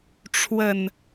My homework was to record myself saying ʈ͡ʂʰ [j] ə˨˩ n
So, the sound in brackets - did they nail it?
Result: no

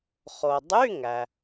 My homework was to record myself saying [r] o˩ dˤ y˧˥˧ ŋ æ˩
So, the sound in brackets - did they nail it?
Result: no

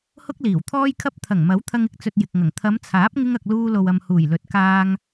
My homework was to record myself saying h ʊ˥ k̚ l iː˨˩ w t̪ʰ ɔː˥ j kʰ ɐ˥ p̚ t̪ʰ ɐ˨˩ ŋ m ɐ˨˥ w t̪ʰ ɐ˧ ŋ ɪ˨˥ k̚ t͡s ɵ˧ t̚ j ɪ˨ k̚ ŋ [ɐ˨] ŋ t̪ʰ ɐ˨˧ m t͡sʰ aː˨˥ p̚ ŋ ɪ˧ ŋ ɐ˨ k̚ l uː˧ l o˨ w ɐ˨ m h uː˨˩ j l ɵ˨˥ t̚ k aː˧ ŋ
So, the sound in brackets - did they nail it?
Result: no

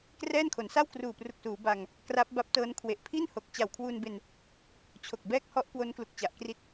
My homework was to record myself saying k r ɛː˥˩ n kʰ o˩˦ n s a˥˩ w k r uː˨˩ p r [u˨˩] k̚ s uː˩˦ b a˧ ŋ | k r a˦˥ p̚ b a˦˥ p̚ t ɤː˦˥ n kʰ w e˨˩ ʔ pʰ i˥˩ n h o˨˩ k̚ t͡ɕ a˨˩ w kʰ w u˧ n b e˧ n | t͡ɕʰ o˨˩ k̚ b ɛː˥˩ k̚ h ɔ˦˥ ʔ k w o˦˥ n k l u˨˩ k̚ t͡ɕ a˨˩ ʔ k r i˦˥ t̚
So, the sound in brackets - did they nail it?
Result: yes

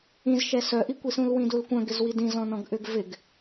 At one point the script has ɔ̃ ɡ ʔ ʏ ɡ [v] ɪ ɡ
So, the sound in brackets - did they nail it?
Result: yes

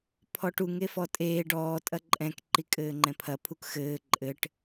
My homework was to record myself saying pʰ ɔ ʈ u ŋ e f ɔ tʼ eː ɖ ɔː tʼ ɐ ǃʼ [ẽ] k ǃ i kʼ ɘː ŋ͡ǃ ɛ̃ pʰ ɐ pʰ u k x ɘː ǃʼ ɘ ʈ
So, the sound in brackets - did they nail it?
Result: no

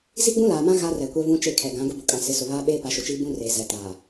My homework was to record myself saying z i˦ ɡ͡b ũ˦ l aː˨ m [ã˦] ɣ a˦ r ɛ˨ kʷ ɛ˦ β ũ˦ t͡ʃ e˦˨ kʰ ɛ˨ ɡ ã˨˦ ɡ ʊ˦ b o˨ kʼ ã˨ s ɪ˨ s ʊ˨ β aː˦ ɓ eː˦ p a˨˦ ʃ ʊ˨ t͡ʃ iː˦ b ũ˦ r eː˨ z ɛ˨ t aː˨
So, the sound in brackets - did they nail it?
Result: yes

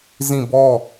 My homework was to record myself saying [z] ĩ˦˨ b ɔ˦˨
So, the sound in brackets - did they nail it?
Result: yes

